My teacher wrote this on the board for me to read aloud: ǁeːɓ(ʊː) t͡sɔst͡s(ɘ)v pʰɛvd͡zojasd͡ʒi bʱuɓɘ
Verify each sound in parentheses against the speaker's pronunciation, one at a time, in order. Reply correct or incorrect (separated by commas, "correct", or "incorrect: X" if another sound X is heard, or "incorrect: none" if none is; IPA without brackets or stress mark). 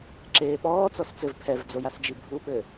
incorrect: ɔː, correct